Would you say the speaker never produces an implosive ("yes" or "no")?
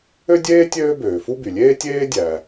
yes